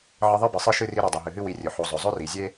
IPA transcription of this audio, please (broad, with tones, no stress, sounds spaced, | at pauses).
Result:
ʕ ɨ˦ ðˤ ɨ˥ b ɨ˩ sˤ ɨ˦ ʃ ɨ˥ r i˦ ɾ i˩ dˤ u˩ ɦ ɨ˩ ɦ ɨ˥ w i˨ rʲ ɵ˩ ħ o˨ zˤ ɵ˩ zˤ ɵ˥ r i˩ zʲ e˥